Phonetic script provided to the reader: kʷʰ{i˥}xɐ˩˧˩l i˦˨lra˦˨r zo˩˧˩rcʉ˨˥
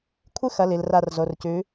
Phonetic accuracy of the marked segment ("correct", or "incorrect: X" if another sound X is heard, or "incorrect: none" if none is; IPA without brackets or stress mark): incorrect: ɨ˥